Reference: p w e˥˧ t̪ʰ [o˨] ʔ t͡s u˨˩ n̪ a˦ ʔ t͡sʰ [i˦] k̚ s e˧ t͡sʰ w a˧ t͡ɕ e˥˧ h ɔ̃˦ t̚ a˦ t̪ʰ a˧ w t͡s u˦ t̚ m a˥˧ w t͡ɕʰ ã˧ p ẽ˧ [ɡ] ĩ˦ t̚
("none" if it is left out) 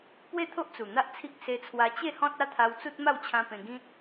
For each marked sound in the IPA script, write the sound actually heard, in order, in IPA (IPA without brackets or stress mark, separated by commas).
o˦, i˦, ɡ